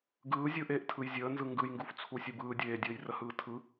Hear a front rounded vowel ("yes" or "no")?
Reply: no